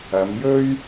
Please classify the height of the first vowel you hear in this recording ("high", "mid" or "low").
low